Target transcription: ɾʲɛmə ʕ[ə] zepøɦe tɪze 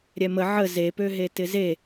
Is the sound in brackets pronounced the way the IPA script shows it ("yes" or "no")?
yes